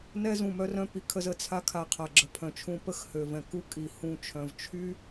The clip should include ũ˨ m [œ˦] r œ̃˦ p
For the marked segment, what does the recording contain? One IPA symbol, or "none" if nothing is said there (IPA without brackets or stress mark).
œ˦